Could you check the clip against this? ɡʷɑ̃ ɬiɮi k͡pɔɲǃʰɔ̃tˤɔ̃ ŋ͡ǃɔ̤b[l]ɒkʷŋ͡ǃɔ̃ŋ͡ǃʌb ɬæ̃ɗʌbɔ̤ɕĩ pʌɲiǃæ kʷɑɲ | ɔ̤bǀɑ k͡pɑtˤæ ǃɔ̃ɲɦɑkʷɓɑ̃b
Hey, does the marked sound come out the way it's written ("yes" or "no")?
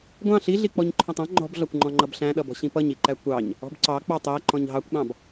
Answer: no